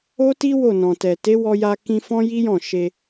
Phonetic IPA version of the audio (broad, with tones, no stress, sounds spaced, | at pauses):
o˦ t i˦ w o˦˨ n ɔ̃˨ t ɛ˨ t e˨˦ w ɔ˧ j a˧ k ĩ˧ f ɔ̃˦ j i˦ j ɔ̃˦˨ ʃ e˧